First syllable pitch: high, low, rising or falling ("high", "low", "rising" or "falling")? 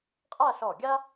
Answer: falling